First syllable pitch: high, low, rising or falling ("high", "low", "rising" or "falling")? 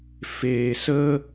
low